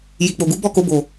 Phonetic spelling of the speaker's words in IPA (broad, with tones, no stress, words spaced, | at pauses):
ji˨k͡po˨ɡu˨˦ bɔ˦˨ko˧bo˨